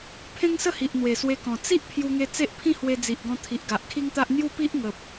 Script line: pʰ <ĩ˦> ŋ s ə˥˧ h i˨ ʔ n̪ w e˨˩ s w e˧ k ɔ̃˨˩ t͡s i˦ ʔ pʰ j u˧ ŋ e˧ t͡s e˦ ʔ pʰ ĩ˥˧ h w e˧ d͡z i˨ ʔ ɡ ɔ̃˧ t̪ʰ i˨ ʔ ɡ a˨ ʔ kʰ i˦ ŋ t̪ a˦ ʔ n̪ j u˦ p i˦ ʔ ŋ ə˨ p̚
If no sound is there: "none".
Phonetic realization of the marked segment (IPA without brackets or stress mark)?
ẽ˦